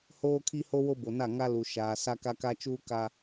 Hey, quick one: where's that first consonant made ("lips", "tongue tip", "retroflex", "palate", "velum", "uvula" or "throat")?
throat